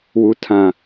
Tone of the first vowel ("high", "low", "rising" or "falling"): low